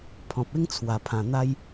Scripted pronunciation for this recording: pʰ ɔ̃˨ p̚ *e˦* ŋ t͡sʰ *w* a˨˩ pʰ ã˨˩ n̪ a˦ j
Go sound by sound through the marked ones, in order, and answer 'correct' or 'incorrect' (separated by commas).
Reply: correct, correct